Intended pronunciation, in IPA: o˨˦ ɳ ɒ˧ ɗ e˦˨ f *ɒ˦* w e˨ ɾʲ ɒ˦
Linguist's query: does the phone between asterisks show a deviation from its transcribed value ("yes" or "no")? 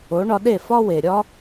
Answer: no